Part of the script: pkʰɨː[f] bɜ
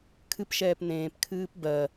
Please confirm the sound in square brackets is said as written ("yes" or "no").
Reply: no